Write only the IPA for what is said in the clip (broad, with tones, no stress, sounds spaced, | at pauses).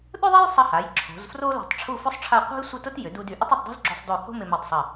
ɗ ʊ˥ ðˤ e˥ j sˤ ɐ˧ h a˩˧ j ǁʰ o̤˩˧ z f r o˥ l o̤˧˩ tˤ ʈ͡ʂʰ u˥˧ f ʊ˥ sˤ ʈ͡ʂʰ a˥˧ qʷ a̤˥ j sʷ ɪ˥˧ t ʊ˥ t j ʏ˩˧ d u˧ d y˩˧ ʔ ʊ˥ tˤ ʏ˧ tˤ d o̤˥ z ɡ͡ǁ ʏ˧ sˤ d o˧˩ h o̤˥ m ɪ˧ m e˧˩ tˤ sˤ ɐ˧˩